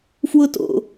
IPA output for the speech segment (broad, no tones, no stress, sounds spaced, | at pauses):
f w ʊ t o̰